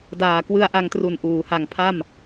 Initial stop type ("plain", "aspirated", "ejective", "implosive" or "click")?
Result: plain